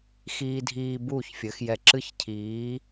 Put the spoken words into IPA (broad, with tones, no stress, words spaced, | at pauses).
xiː˧dʱiː˧ buː˥˨çfʲɘ˨˥x jɛ˧ǁɨ˥˨çcʰiː˨˥